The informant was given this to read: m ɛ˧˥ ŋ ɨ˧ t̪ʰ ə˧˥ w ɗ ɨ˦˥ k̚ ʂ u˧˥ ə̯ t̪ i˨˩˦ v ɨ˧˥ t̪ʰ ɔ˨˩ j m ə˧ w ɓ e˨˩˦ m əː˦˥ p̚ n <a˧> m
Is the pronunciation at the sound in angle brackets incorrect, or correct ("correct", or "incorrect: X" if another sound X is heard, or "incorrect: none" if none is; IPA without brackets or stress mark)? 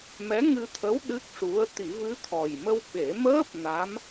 incorrect: a˧˥